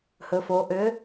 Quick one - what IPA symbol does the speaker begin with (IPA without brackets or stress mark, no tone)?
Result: h